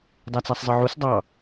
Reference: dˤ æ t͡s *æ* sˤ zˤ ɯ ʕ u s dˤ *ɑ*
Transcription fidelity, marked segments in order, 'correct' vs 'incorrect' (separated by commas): correct, correct